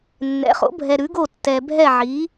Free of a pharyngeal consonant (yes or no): no